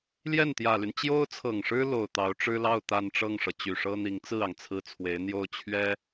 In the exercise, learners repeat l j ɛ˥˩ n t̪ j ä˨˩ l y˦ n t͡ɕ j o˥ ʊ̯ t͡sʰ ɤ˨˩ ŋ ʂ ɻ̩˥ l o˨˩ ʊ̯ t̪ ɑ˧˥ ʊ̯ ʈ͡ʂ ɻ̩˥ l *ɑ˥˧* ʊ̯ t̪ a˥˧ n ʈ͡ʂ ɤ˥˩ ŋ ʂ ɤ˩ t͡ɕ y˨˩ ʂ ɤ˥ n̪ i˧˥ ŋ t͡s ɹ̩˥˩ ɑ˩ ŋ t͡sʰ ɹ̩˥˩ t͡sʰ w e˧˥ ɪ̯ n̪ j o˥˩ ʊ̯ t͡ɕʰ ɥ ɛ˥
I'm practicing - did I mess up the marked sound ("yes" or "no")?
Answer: no